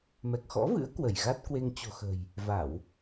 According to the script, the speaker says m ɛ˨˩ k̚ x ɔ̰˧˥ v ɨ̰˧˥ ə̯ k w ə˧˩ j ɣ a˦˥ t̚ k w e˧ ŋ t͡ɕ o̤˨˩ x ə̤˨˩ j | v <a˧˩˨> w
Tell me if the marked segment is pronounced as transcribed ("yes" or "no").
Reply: yes